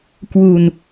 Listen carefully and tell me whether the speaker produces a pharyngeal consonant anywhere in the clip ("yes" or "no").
no